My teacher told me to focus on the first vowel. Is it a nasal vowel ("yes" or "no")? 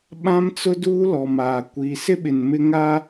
yes